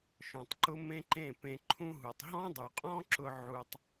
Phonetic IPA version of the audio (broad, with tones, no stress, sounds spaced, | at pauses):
ʃ ɔ̃˨ tˤ ǃ ʊ˦ m ẽ˦ ǃ ẽ˦˨ p ẽ˧ ǃʰ ũ˦ ɦ u˨ tˤ ɦ ɔ̃˦ dˤ u˨ qʼ ɔ̃˦ ǁ ʊ˧ ʕ u˧ tˤ